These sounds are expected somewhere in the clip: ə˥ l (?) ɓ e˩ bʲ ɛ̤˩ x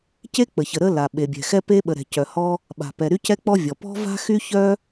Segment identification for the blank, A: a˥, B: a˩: B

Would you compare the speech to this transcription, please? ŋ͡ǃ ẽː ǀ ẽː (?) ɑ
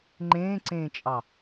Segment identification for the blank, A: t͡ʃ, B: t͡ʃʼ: B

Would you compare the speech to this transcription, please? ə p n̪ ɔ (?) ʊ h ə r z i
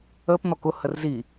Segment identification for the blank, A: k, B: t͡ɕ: A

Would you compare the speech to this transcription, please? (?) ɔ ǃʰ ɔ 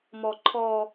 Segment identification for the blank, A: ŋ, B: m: B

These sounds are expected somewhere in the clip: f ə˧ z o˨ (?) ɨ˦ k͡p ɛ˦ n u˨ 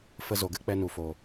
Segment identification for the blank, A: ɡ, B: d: A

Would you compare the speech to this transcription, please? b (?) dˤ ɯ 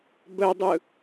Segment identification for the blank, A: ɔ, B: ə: B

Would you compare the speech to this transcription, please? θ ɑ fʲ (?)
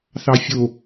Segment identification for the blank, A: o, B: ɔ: A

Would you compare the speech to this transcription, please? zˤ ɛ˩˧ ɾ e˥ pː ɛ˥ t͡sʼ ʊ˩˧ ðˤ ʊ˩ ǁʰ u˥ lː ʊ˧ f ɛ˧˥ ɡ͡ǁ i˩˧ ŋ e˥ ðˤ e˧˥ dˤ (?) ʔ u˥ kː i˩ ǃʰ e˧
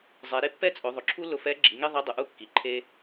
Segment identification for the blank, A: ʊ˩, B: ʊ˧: A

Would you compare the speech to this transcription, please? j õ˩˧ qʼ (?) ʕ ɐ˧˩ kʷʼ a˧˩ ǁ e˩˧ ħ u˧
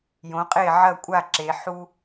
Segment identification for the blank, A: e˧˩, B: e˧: A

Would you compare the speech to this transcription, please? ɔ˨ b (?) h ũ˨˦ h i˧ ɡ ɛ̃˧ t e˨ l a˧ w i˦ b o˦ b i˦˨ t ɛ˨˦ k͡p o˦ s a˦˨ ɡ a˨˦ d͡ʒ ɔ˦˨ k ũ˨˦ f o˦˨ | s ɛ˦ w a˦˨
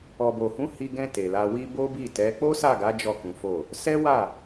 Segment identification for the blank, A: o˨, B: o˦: A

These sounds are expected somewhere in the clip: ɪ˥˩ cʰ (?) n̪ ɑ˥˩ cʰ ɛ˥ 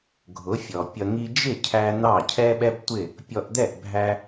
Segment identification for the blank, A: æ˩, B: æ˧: B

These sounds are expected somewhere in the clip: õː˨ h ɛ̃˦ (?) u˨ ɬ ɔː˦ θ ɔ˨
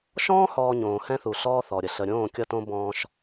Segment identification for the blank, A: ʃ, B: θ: B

